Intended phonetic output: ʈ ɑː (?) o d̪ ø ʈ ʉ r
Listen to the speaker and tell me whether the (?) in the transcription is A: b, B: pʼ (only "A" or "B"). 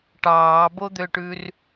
A